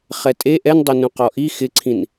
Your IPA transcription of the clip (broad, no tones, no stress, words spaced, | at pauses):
χɛtʼe ʔɛndˤonũ qɔʔi xɪǀʰĩn